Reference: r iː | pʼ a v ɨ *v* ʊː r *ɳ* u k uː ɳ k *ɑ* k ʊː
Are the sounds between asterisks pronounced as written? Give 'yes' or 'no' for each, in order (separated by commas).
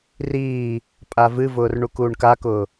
yes, yes, no